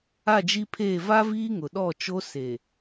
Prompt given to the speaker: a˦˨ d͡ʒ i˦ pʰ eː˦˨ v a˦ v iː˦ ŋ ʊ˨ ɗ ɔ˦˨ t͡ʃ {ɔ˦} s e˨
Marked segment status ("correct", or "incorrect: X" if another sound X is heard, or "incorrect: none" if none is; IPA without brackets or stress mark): incorrect: o˦